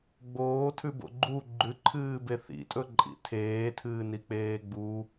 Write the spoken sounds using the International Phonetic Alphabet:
ɡ͡b oː tʰ ʉ b o̰ ɡ͡ǃ u ɡ͡ǃ ʉ ǃʰ ɨː b e θ ḭ tʼ ɵ ǃʼ ḭ tʰ eː tʰ ɨː n i k͡p eː ɡ͡b u

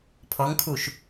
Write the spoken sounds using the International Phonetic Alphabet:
pʰ ɔ ŋ kʰ u ʃ

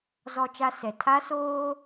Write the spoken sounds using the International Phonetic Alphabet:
z ɔ˦ t͡ʃ a˦ s ɛ˨ tʰ a˦ s oː˦

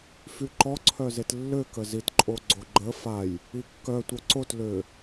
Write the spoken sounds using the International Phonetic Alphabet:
f y ǃ ɔ ǀʰ œ z e t lː ø k ə z i t ǃʼ o ɡ͡ǀ o ɡ͡ǃ ə f a j | i kː œ tʷ œ ǀ o t l ø

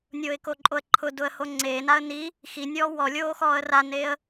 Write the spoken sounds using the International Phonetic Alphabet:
nʲ oː ɪ̯ k o ǃʼ o ə̯ ǃʰ ʊ d ʊ ə̯ h o ŋ͡ǀ eː n a ə̯ n i | x i nʲ ɔː w ɔ lʲ oː x ɔː ə̯ r a n eː ə̯

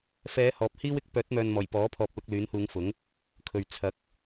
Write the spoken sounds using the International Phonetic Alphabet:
f ɛː˨˧ h ɔː˨ p̚ h iː˥ w ɪ˧ k̚ p œː˨˥ t̚ m œː˨ n m ɔː˨˩ j p ɔː˨˥ pʰ ɔː˨ p̚ l ʊ˧ k̚ l yː˨˥ n h uː˨˧ ŋ f ʊ˨˥ ŋ | kʰ ɵ˨ ɥ t͡sʰ ɐ˨˥ k̚

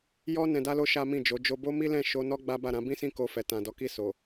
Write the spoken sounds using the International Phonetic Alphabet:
j ɔ˦ n ɛ̃˧ d a˦ l o˦ ʃ a˦ m ĩ˦˨ d͡ʒ o˨˦ d͡ʒ o˧ b o˦ m i˦ l ɛ̃˦˨ ʃ o˧ n ɔ˦ ɡ͡b a˦ b a˦˨ ɾ ã˧ b ĩ˦ s ĩ˦˨ k o˧ f ɛ˨ t ã˨ d ɔ˨˦ k i˦˨ s o˨

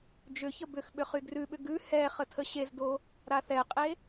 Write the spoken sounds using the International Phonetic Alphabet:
d͡ʒ ʏ ç ə b ʏ x ɓ ʏ χ y ɡ r ʉ ɓ ʏ ɡ ʉ h ɛ χ ə tʰ ə ɕ e z d o | ɾ a θ ɛ qʼ e

